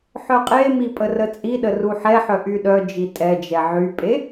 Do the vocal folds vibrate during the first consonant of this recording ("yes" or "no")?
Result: no